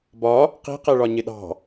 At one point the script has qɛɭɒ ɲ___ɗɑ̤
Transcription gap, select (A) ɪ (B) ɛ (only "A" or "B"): A